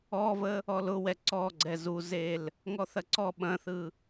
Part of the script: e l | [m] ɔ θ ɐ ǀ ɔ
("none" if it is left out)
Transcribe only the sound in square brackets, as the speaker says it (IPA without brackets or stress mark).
ŋ